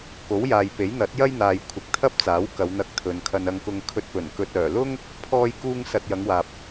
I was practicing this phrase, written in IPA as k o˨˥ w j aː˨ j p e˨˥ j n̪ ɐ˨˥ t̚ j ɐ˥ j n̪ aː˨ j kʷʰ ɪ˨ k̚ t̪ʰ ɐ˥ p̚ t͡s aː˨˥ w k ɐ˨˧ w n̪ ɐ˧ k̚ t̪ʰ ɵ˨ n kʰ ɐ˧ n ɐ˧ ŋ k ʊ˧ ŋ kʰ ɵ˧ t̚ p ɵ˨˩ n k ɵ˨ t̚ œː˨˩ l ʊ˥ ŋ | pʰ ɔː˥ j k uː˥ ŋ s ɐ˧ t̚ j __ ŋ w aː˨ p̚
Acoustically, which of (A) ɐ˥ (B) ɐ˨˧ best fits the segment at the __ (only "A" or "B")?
B